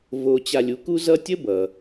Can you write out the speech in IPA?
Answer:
v o˧ t͡ɕ a˧ lʲ u˩˥ k u˥ z ʌ˥ tʲ ə˥ b ʌ˩

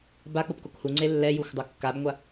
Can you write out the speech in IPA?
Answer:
b a k͡p o p k o k h u ŋ͡ǀ e lː ɛ j u xʷ dˤ u kː a b ŋʷ a

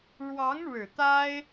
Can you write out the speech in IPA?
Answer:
ɻ w ɑ˧˥ ŋ ɻ ɻ̩˨˩ t̪ a˥ ɪ̯

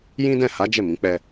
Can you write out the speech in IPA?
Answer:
j ĩ˦ d ɛ̃˦˨ h a˨˦ d͡ʒ ɛ˦˨ m ĩ˨˦ k͡p ɛ˧

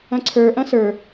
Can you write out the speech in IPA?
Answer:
ɐ̃ ǀʰ ə˞ ʔ ɐ̃ s ə˞

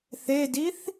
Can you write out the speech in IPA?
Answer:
θ e d i θ

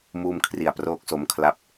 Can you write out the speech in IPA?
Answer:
m uː˧ m kʰ r i˨˩ a̯ p r oː˦˥ k̚ s o˦˥ m kʰ l a˦˥ p̚

